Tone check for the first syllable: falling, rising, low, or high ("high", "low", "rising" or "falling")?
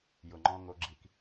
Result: low